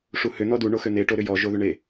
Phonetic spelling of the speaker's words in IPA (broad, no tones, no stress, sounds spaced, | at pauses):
ʂ u h ʏ n̪ ɔ d u ɳ o x ø n̪ e ʈ o ɾ ʏ j ɔ ʒ o ð ʏ ɳ e